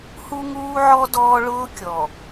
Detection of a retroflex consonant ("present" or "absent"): present